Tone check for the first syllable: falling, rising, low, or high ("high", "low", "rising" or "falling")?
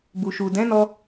low